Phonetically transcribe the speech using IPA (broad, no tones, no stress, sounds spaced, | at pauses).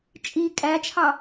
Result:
t͡ʃʼ i kʼ æ t͡ʃʰ ɑ